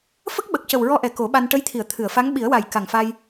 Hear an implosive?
yes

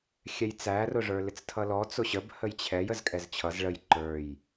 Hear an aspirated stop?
yes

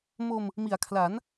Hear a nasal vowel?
no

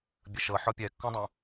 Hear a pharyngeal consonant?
yes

